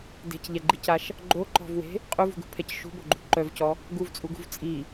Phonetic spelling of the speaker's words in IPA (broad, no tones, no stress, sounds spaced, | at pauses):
d e̤ c ʎ ɛ ɡ͡ǃ i c a ʃ | ɡ͡ǃ o ǃ ɔ̤ v w e̤ | qʼ u v ṳ ɡ ṳ pʰ ɛ c ʃ ṳ b o ɡ͡ǃ ṳ ǃ œ v c ɔ | ɡ u v t͡sʼ u ɡ ṳ v t͡sʼ i